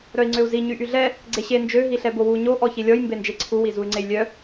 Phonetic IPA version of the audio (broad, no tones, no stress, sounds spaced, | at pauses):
ɾ œ i̯ ŋ͡ǀ ø u̯ z i ɲ y ʔ y ɮ ɛ | ɡ͡ǀ e ɕ e n d͡ʒ ø ɦ i ɬ ɛ b o w u ɲ o ʔ ɔ ç i lʲ ɔ j m b e n d͡ʒ e ǀʰ u w i z u y̯ ŋ͡ǀ e j lʲ œ